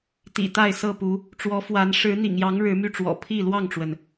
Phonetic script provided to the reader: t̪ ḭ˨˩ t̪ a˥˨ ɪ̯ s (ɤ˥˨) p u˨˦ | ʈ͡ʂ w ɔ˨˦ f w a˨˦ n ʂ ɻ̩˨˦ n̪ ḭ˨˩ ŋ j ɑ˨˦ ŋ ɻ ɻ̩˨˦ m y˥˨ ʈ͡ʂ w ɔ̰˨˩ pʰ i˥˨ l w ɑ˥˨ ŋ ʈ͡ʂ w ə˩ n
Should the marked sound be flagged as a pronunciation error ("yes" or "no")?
no